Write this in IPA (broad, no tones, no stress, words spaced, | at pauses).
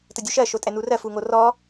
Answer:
tədʲuʃɜ ʃotʼɛnurɜ fuŋorɔ